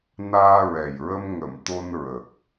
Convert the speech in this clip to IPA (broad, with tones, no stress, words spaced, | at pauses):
naː˧ ɹɛ˨˩jɹə˧m ŋə˨˩˨m t̪o˧nɹə˨˩k̚